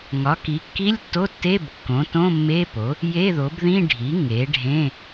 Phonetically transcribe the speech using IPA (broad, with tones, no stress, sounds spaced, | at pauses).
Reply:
ŋ ɒ˩˥ k i˩˥ kː i˧˥˧ lʲ tː o˧˥˧ tː e˧˥˧ b kː õ˩˥ t õ˧˥˧ mː e˧˥˧ p o˩˥ | j e˧˥˧ ð o˩˥ b ð ĩ˧˥˧ ɖʱ i˩˥ ŋ e˩˥ ɖʱ ẽ˧˥˧